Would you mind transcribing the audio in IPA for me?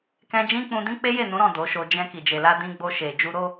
k ɛ̃˧ d͡ʒ ĩ˦ k͡p ũ˧ d ĩ˦ k͡p e˦ j e˦˨ n ũ˨˦ ɾ ɔ̃˦˨ d o˨˦ ʃ o˧ d͡ʒ ɛ̃˧ k i˨ d͡ʒ e˨ l a˧ d ĩ˧ ɡ͡b o˧ ʃ e˨ d͡ʒ u˧ ɾ o˦

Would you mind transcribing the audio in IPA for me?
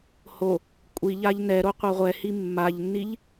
h o | kʷʼ i ʎ a ʎ n ɛ ɾ o qʷ a ʁʷ ɛ h i mː a ʎ nː i ʎ

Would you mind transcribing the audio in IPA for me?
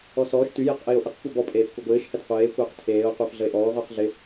ɔ s ɔː ʃ t y j e q ʔ ɪː o̯ ʔ ɪ q kʷ ɛ b ɔ pʼ eː f kʷ ɛ ɡʷ ɪː ʃ h ɛ t qʷ eː kʷ ɪː q tʰ eː o̯ qʷ ɪː f ɮ ə e̯ ʔ ɔː ʁʷ əː q ɮ ɪ

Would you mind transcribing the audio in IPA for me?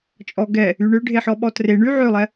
t͡ʃʼ ɔ ɡ ɛ | y ɳ ø ɖʱ e ħ ɔ ɓ ɔ t r e ɳ y ʕ ø lˠ ɛ

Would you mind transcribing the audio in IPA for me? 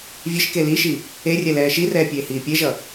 vʲ e ʃ k e l i ʃ i | e rʲ ɛ l ɛː ʃ i r ɛː pʲ eː h iː pʲ e ʒ ʌ

